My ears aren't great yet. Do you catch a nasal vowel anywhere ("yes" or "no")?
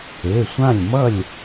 yes